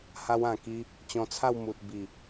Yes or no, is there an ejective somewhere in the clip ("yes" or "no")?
no